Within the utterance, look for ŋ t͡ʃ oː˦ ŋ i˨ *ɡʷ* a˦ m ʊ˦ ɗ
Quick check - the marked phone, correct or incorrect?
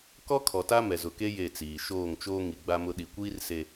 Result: incorrect